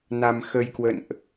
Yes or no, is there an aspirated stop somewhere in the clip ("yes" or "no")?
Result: no